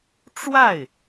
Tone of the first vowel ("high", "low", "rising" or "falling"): falling